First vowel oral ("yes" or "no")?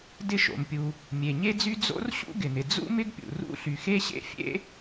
yes